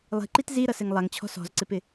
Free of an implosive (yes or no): yes